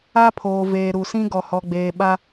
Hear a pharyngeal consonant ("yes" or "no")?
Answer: no